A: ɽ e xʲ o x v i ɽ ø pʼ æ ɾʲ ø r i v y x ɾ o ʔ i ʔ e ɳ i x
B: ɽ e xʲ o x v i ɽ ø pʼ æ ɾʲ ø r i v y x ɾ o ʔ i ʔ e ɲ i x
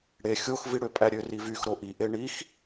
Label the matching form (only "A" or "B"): A